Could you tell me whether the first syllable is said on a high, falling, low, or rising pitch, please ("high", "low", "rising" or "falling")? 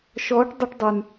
rising